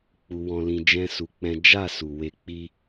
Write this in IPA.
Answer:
k͡p u˧ w ɔ̃˧ l ĩ˧ d͡ʒ ɛ̃˦ s u˧ k͡p ɛ̃˦ d͡ʒ a˦˨ s u˨ w e˧ k͡p i˦

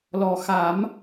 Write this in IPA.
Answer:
l ɔ˨˩ x a˨˩˦ m

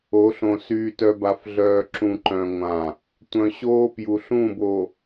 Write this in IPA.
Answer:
o˨˦ ɬ õ˨ s yː˨ t œ˨ b a˨ f ɮ œː˨ ǁ ũ˨ ǃ œ̃˨ ŋʷ ã˨ | tʷ œ̃˨ ɕ oː˦ p j u˨ ɬ ũ˦˨ b o˨

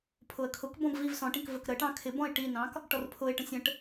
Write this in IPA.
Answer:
pʰ ʊ ə̯ kʰ ʊ k b ɔ̃ b v i v s ɔ̃ ʈ ĩ k v ə k ɾ ə ʈ ɑ̃ kʰ ɪ b ɔ̃ ɪ̯ ʈ i n ɑ̃ k | ʈ ɔ r pʰ ʊ ɪ̯ ʈ ə̃ sʲ ə̃ ʈ

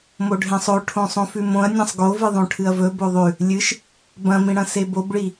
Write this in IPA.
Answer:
m o ɖʱ ẽ sˤ o ʈʰ õ sˤ õ f ʉ m õ ɐ̯ nʲ ã sˤ ɡ o v ɨ ðˤ õ ʈʰ ɨ ɐ̯ v ɵ b o ðˤ ʉ | lʲ ɨ ʃ | b ɐ̃ m ĩ ɽ ɐ̃ s e b o b ɭ i

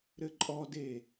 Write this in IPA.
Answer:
ɾ ɘ ǃʼ ɔ d e

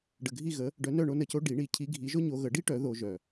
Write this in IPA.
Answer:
ɖ ə˨ ɡʱ i˦˨ ɣ ə˨˦ | ɖ œ˨˦ n œ˦˨ ɳ o˥ n ə˦˨ c o˥ ɖ i˨˩˦ ɳ i˨˩˦ cʰ i˨˦ ɡʱ i˨˦ ʒ o˥ ɲ o˨˦ ɣ ə˨˩˦ ɖ i˥ ʈ œ˨˩˦ ð o˨˦ ʒ œ˨

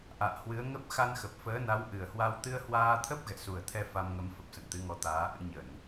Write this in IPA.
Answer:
ʔ a̰ː˧˨ h w ɨ˨˦ ə̯ ŋ ə˦˥ p̚ x a˧ n x ə˨˩ p̚ f əː˨˦ n a˨˦ w ʔ ɨ˨˩ ə̯ h w a˧ w t̪ ɨ˧ ə̯ h w aː˧ t̪ʰ ə˦˥ p̚ ɣ ɛ̰˧˨ s u˨˩ ə̯ t̪ʰ ɛ˧ f a˧ m ŋ ə˨˦ m f ə˨˩ p̚ s ə̰˧˨ n t̪ ɨ˨˦ ŋ ɔ˨˦ t̪ aː˨˦ ʔ ɨ̰˧˥ ɲ ə˧˩˨ n

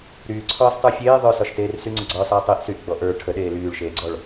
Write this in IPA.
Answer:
ɾ yː ǀʰ ɒː s tˤ ə˞ fʲ eː ðˤ ə˞ s ɒ ʃ t eː r s y ŋ͡ǀ ə ɡ͡ǀ ɒː s ɒː tˤ i ʔ s y ʔ ɡ͡b ɔ ʔ ə˞ ʈʰ ə ɗ eː l yː ɭ ʃ eː ɡ͡ǀ ɔ ɭ

